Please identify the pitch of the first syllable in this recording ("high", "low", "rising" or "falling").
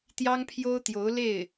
high